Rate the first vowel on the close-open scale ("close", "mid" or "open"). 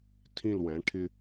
close